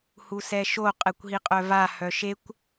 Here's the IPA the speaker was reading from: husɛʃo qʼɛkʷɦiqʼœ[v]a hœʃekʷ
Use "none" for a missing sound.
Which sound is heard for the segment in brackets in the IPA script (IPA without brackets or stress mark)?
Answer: v